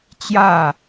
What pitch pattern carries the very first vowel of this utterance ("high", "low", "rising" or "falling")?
falling